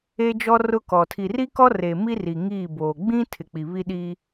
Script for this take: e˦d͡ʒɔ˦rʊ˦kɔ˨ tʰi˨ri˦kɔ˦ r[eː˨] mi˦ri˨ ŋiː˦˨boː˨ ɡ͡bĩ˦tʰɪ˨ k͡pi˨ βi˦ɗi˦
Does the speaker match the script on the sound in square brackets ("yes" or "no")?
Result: no